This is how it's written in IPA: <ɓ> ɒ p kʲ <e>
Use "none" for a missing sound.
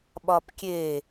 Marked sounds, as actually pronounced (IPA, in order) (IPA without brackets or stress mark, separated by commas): ɓ, e